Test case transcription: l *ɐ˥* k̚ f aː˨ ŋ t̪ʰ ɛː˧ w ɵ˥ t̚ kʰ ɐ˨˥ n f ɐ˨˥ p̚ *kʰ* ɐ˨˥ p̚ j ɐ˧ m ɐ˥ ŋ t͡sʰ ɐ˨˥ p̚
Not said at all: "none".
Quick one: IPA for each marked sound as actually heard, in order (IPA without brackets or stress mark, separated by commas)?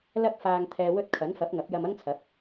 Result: ɐ˧, ŋ